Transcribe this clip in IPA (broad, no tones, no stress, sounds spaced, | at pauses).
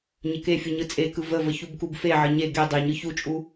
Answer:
ɲ ə k e fʲ u ɲ ɯ t͡sʼ e k ɯ v ə v ə ç u b k u b f e ʕ ə ɲ e ɡ e dˤ e ɲ ɯ ç u t͡ʃʼ u